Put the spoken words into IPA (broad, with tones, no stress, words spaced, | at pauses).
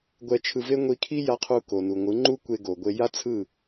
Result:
ɡʷɛ˧ t͡ʃʰɯ˧ve˦ ŋʷi˧ kʰi˦ja˧ qʰu˧ko˨ nu˨ŋʷɯ˨˦ŋ͡ǃu˦kʷe˧ ɡo˨ɡʷe˧ ja˦t͡sʰɯ˦˨